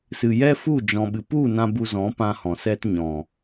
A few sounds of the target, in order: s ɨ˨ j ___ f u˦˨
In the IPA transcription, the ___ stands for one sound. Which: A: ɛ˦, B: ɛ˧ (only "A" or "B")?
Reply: A